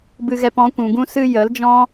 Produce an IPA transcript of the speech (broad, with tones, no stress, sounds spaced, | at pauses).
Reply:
b ɨ˧ ɣ ɛ˧ p ɔ̃˨˦ kʷ ũ˨ ɡ ũ˧ s ɨ˧ j ə˨˦ l d͡ʒ ɔ̃˦